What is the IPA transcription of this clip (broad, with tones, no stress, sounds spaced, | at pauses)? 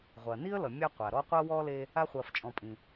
ʁʷ ɐ˩ n i˥ ə̯ l ʌ˩ mʲ a˦ qʷ a˩ ɾ ɔ˦ qʷ ɐ˥ w ɔ˥ l e˦ | a˦ χʷ ɐː˨ f t͡ʃʼ ɔ̃˨ pʼ ĩ˩